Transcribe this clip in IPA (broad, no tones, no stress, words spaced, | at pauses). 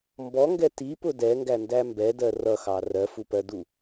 mbɔŋɡɛ tipʊ dɛŋɡændæ mbɛdɜ rʌxɑ rɜfupɜdu